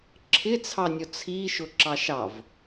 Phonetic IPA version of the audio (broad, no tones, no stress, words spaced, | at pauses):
ǁʰɪt͡sʰɑnʲɔ t͡sʰiʃʊ ǁɑʃɑv